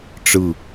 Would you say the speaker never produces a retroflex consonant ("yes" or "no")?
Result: no